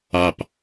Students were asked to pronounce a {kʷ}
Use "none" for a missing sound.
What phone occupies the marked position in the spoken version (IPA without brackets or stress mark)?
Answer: p